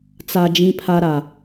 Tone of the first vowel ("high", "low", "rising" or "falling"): high